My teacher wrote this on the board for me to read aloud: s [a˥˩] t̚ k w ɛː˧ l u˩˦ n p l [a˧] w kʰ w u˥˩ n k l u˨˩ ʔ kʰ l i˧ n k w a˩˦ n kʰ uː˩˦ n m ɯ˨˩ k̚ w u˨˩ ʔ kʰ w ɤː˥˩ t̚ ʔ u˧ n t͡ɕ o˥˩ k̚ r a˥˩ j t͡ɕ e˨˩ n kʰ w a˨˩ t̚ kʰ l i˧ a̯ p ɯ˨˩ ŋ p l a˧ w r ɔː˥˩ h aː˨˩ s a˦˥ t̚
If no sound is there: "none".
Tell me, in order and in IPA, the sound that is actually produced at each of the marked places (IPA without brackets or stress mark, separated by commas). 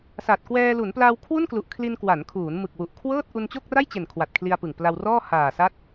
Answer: a˨˩, a˧